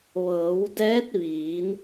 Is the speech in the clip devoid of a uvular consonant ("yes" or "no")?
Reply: yes